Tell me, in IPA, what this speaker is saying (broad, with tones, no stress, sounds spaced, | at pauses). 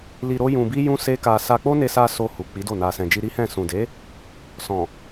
l i˧ ɾ o˦ j ũ˧ b i˦ j ũ˦ s e˦ k a˧ s a˧ k͡p o˦ n e˧ s a˧ s o˧ h u˨ k͡p i˨˦ d o˦˨ n a˨ s ɛ̃˨ d͡ʒ i˧ ɾ i˦ h ɛ̃˦˨ s ũ˨ d e˨˦ | s ɔ̃˨